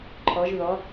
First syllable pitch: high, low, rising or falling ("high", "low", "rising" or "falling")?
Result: rising